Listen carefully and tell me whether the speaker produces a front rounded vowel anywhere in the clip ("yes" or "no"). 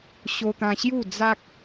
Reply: no